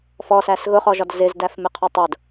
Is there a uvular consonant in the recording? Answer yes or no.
yes